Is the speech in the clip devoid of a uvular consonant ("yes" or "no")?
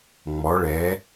yes